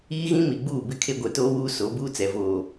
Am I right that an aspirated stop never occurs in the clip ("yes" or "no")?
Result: no